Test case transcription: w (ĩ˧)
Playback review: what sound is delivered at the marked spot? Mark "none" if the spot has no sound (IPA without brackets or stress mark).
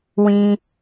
ĩ˧